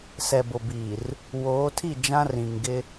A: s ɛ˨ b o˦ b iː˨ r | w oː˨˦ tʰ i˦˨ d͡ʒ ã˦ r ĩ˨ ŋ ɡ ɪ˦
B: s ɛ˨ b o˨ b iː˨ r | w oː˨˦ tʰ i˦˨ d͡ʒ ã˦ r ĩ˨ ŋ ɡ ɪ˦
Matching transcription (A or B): B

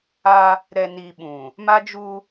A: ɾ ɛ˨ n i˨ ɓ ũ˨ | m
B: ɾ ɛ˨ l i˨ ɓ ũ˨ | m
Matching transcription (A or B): A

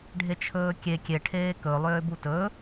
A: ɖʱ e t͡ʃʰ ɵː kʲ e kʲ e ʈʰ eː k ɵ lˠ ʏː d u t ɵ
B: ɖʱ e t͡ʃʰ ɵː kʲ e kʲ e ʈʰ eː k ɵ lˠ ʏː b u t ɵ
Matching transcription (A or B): B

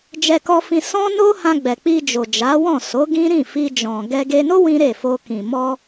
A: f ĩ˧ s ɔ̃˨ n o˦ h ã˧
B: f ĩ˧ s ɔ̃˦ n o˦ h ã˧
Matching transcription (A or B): B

